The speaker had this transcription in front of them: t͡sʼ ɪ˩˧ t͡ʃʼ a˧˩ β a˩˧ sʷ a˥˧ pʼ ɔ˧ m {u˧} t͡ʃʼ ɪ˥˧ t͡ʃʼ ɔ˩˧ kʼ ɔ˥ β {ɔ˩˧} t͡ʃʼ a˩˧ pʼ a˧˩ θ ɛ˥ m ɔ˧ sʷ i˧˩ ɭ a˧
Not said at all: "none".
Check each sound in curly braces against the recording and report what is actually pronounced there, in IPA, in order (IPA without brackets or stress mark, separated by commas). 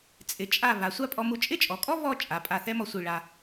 u˧, ɔ˥˧